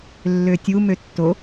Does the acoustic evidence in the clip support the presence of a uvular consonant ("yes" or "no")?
no